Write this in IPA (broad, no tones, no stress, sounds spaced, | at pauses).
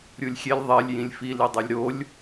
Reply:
ɾʲ u lʲ xʲ e lʲ ðˤ e lʲ j ĩ lʲ f i l i dˤ e lʲ ɾ o lʲ